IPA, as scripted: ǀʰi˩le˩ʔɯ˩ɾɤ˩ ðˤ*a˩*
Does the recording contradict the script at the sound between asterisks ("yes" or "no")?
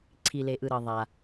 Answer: no